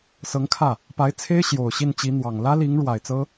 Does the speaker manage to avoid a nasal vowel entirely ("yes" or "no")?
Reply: yes